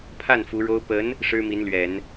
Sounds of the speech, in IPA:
pʰ a˥˩ n f u˧˥ ɻ o˥ ʊ̯ p ə˧˥ n | ʂ ɻ̩˥ m i˧˥ n l ɥ ɛ˨˩˦ n

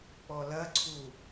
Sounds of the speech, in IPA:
k͡p ɔ l ɐ ǀʰ u

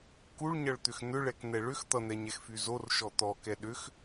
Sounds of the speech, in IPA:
k u ɭ ɲ ʌ ɭ t̪ ʏ x n̪ ʏ ɭ ɛ k n̪ ɛ ɭ ʏ x t̪ ʌ n̪ ɛ ɲ ɛ x f y z o r ʃ ɔ t̪ ɔ k ɛ ɗ ʏ x

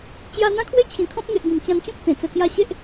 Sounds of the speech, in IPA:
t͡ɕ j a˧ n̪ ã˦ kʰ w e˦ t͡ɕʰ ĩ˨˩ kʰ ɔ̃˦ p̚ ŋ e˨ ʔ ɡ ĩ˨˩ m t͡ɕ ã˧ n t͡ɕ ɔ̃˦ k̚ t͡s ẽ˨˩ t͡s ə˧ k j a˦ ɕ e˦ ʔ

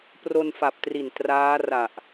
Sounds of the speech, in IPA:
p r o˧ n f a˨˩ p̚ t r i˨˩ n t r aː˦˥ r a˨˩ ʔ

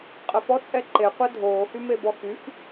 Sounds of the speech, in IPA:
qʼ ə f ɔ t͡sʼ ɛ ǃ e qʷ ɛ dʱ oː h y m e b ɔ x y f

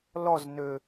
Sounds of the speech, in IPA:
l ɔ z n ø

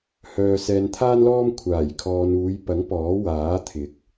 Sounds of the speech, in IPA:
h œː˨ s ɛː˨ n t̪ʰ aː˥ n l ɔː˥ m kʷʰ aː˨˩ j kʰ ɔː˨ n uː˨˧ j p ɐ˨˥ ŋ p ɔː˨˥ w aː˨˥ t̪ʰ ɪ˨˥ k̚

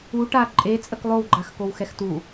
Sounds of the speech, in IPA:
u ʈ a ǃʼ e t͡sʼ ə k lˠ o w ɡ͡ǃ a x k o w x ɛ x t u

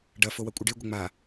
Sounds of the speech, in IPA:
ɖ ɐ f o w ɐ kʷʼ ɪ ɖ e ɡʷ ɪ ŋ͡m a

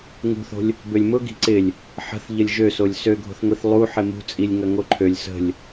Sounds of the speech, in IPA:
ŋ ṳ θ o̤ lʲ | b ø lʲ m ʊ ɡ i̤ ǀ ɪ lʲ | ħ ə̤ θ ʎ ə lʲ ʒ ø s o lʲ s ø ɡʱ o̤ θ ŋʷ i θ lˠ u ħ ɪ m ṳ t͡sʼ i lʲ ŋ ɐ ŋ o ǃʰ ø lʲ s ə̤ lʲ

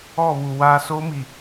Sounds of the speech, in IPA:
ɔ˦˨ β u˨ w aː˦ s o˦ m i˨

